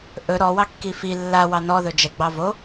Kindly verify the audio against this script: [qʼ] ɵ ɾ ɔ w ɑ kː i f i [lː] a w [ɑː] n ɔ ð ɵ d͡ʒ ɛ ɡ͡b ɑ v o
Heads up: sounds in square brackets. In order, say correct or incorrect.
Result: incorrect: ʔ, correct, incorrect: ɑ

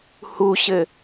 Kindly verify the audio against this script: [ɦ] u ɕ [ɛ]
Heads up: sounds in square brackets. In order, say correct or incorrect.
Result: incorrect: h, incorrect: ɘ

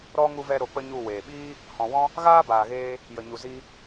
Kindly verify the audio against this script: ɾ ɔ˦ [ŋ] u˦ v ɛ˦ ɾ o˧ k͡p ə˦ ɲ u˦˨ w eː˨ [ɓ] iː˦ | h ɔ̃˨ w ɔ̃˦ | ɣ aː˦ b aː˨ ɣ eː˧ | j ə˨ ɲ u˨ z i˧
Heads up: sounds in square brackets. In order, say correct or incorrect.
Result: correct, correct

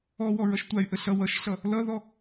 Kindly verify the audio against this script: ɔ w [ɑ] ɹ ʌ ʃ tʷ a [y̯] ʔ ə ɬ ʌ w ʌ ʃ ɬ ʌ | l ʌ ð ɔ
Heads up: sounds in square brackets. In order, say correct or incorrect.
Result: incorrect: ɔ, correct

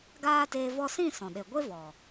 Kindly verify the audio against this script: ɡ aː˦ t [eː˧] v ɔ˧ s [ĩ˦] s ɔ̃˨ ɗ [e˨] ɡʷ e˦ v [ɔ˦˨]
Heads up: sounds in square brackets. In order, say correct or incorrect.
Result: correct, incorrect: ĩ˦˨, correct, incorrect: ɔ˨

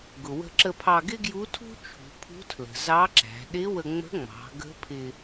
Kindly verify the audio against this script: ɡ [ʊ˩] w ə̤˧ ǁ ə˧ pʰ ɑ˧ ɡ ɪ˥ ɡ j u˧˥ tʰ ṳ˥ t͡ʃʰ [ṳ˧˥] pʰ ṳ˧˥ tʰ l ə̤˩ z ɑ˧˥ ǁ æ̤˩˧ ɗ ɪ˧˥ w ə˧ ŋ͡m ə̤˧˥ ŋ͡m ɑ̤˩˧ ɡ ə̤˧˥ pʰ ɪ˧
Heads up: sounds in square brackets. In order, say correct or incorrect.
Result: correct, incorrect: ṳ˩˧

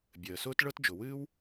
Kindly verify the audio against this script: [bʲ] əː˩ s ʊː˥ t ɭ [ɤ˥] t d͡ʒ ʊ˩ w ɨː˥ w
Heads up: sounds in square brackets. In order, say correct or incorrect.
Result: correct, correct

